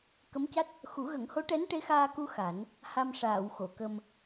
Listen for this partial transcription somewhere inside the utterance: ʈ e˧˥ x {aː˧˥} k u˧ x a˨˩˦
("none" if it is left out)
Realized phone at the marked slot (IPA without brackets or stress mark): aː˧